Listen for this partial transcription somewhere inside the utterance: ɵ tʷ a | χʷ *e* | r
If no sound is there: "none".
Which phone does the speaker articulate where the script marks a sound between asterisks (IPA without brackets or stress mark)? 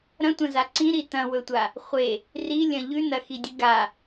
e